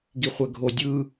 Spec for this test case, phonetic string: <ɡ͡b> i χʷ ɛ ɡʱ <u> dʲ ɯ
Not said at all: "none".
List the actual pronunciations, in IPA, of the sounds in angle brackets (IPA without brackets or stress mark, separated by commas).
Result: ɡ, o